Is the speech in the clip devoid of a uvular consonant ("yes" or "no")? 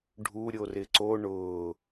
yes